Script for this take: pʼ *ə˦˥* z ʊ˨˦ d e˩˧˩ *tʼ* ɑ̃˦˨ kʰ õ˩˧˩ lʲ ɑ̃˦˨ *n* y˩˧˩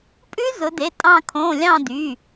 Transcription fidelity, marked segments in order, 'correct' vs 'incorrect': incorrect: ʉ˦˥, correct, incorrect: d

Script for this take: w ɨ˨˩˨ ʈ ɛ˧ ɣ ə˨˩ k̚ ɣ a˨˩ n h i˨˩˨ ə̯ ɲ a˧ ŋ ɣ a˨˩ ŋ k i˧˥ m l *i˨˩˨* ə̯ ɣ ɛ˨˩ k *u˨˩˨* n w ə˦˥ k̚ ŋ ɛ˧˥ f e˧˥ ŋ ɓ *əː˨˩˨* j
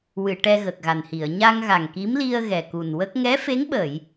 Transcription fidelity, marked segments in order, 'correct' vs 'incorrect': incorrect: i˧, incorrect: u˨˩, correct

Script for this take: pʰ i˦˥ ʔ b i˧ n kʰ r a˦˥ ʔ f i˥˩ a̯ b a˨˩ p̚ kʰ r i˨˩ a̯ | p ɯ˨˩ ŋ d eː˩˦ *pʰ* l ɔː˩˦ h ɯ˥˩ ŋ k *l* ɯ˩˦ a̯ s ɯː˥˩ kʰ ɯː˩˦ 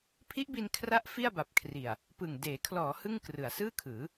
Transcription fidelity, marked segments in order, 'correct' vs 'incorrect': incorrect: kʰ, incorrect: r

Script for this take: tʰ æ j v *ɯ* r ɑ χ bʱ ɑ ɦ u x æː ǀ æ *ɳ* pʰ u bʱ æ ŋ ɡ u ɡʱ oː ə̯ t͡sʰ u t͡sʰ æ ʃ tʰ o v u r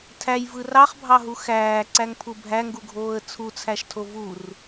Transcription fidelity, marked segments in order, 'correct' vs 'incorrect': correct, incorrect: ŋ

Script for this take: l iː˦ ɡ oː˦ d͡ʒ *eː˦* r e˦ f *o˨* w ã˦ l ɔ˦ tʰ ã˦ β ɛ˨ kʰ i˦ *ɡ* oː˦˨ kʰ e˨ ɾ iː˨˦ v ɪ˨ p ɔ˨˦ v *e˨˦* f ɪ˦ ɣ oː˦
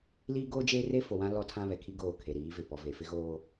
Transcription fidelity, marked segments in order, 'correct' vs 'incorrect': correct, correct, correct, incorrect: e˨

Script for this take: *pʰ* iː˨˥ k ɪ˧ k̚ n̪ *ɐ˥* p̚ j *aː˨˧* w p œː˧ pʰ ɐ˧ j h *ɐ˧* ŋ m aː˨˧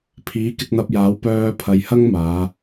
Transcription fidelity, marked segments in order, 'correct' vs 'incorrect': correct, incorrect: ɐ˧, incorrect: aː˨˥, incorrect: ɐ˥

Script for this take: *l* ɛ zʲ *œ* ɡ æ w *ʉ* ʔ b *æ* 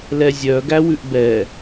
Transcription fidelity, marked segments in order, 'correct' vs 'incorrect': correct, correct, correct, incorrect: ɛ

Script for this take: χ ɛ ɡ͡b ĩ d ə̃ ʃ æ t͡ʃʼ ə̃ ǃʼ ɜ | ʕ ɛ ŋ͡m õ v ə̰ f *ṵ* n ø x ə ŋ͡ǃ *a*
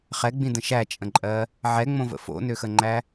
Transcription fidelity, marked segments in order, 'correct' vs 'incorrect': incorrect: o̰, incorrect: æ

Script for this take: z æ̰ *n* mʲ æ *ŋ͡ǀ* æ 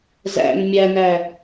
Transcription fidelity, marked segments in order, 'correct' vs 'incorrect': correct, incorrect: n

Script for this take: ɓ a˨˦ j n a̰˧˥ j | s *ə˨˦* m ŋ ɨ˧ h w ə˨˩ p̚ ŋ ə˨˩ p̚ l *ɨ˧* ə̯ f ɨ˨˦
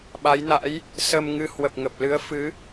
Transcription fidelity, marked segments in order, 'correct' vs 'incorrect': incorrect: ə˧, incorrect: ɨ˨˦

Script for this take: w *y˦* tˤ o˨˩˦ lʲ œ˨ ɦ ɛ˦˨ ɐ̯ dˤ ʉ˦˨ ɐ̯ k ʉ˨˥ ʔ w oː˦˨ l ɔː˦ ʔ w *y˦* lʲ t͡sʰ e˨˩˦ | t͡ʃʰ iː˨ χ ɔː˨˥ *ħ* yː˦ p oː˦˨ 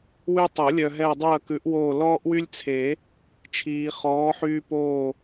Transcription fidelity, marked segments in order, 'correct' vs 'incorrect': correct, correct, correct

